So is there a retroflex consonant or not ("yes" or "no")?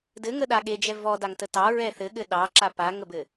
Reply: no